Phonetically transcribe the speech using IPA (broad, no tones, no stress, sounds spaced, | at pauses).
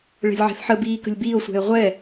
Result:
ɭ ɛ̤ lʲ ʕ ɛ̤ θ ħ ə b iː k ə̤ lʲ b iː o̯ sʷ ɛ̤ e̯ ʁʷ ɛ